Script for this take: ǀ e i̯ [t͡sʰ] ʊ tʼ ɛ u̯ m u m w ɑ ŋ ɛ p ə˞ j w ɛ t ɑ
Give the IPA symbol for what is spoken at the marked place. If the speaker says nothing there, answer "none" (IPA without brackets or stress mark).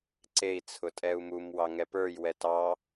t͡sʰ